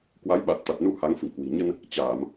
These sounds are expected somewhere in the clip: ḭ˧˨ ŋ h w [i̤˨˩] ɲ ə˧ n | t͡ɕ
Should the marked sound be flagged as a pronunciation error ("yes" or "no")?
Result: no